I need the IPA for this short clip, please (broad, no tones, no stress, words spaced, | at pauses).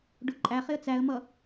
ɖʊ ǃʼæχɪə̯ t͡sæə̯mʌ